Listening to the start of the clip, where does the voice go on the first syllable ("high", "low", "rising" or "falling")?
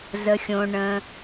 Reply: low